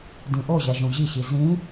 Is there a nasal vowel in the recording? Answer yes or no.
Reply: yes